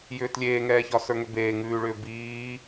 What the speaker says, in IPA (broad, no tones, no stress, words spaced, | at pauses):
jʏːtlʲeːŋɛːçɒ sə˞ŋʏbeː ŋʉːɭʏː biː